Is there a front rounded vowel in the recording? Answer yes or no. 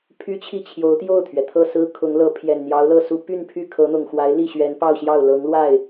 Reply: yes